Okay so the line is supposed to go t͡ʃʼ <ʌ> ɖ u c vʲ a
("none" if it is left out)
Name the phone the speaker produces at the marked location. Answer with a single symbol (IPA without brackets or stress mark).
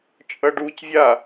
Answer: ʌ